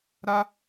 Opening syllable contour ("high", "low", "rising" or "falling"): high